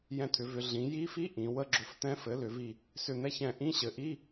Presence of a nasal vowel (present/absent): present